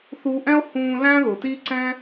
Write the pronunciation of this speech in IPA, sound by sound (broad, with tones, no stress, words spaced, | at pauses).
θu˧ʔɛ̃˦o̯ hũː˧ læ̃˦ðʊ˨tiː˦ǀɛ̃˦